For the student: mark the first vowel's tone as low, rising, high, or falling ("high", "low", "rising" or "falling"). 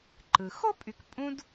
low